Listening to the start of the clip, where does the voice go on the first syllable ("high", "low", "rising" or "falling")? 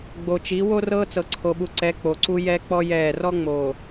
low